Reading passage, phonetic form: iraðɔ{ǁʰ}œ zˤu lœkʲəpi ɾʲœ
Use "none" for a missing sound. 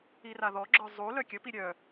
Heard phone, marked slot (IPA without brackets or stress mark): ɡ͡ǁ